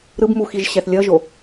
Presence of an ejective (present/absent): absent